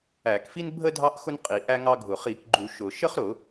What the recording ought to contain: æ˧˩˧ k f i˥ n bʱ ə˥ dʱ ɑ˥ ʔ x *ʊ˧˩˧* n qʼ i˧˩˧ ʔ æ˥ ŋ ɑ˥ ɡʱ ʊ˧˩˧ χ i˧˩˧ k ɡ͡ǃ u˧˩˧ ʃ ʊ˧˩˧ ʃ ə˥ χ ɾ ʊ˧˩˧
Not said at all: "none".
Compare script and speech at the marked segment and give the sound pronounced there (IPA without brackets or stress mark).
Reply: ʊ˥